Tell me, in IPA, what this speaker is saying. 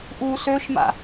ʔu søʃma̰

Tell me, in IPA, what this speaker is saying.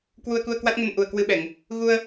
kwu˧ə̯ku˧ə̯kwa˦˥t̚ŋə˧n ʔu˨˩ə̯kwɨ˧ɓɛ˧˩˨ŋ | ɣu˧ə̯

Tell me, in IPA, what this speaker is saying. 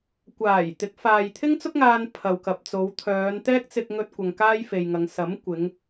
kʷaː˨˩jt̪ɪ˨˥k̚faː˨j t̪ʰɪ˥ŋt͡sʊ˥k̚ŋaː˧n pʰɐ˨wkɐ˨p̚t͡so˨˧w t̪ʰœː˨˧nt̪ɛː˥k̚ t͡sɪ˧k̚ ŋɵ˥t̚kʷɐ˧ŋ kaː˥jfe˨jŋɐ˨˧ŋ sɐ˨˥m kʷɪ˨˧ŋ

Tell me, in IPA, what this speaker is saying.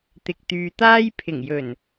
t̪ɪ˨k̚t̪yː˨t̪aː˥j pʰɪ˨˩ŋjɵ˨˩n

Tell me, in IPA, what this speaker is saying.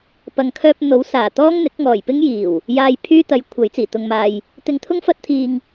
pɐ˨ŋkʰœː˧p̚ n̪o˨˥wsaː˨˩ t̪ɔː˥ŋn̪ɪ˨˥k̚ ŋɔː˨˩jpɪ˥ŋjiː˨˩w | jaː˧j pʰyː˥t̪ɐ˨˥j kʷʰɐ˨˥jt͡siː˨˩t̪ʊ˧ŋmaː˧j | t̪ɪ˧ŋt̪ʰʊ˥ŋfɐ˥t̚t̪ʰiː˧ŋ

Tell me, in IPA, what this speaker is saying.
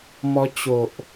mɔ˧t͡ɕo˨ʔ

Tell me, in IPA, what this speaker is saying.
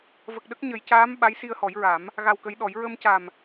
və˨˩k̚ɗə˦˥k̚ɲə˨˩˦jcaː˧˥m ɓa˧˥jsi˧ə̯hɔ˨˩˦jɹa˨˩˦m | ɣa˧wkə˧˥jɗɔ˨˩˦j ɹə˧mca˨˩m

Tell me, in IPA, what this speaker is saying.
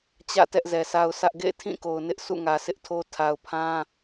t͡ɕä̰˦˨ tɛ˦ʔzɛ˨sa˦ʊ̯sä˦ʔ ɡḛ˦˨ɪ̯tʰĩ˦˨ko˨ʊ̯ nɪ˦ʔ sṵ˦˨ŋä˨sɪ˦ʔtʰo˦ tʰa˨ʊ̯pʰã˦

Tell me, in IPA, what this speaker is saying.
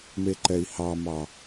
meǃɛi̯hɑmɑ

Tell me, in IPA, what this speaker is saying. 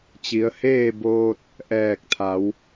t͡ɕi˩˧ə̯heː˥˨boː˧t̚ | ʔɛː˧˩k̚t̪ʰa˩˧w

